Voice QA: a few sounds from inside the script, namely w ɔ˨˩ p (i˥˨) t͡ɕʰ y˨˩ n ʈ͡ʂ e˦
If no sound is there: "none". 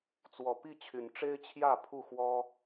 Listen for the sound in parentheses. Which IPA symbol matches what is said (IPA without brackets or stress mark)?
i˥˨